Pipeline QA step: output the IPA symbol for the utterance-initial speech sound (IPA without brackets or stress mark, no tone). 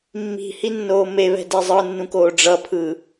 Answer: mː